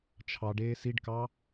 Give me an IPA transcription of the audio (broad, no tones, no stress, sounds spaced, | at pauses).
t͡ʃʰ ɑ ɖ eː s i ɖ k ɑ